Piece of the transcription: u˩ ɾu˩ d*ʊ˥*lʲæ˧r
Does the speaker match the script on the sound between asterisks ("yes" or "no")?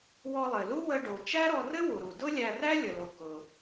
yes